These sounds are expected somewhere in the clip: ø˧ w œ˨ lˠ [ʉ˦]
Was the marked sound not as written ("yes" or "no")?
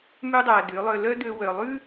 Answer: no